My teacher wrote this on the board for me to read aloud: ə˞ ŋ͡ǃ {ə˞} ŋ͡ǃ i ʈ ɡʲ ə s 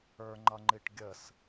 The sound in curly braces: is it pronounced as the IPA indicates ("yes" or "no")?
no